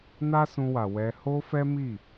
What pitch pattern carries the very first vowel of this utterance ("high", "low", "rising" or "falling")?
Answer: high